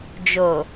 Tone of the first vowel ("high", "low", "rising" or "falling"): low